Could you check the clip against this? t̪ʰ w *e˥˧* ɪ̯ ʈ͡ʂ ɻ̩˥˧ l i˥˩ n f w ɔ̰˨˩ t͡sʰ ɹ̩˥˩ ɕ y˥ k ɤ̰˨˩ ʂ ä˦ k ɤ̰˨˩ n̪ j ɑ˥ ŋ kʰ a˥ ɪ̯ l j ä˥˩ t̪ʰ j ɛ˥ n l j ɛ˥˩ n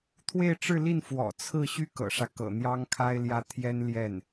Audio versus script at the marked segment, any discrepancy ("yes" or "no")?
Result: no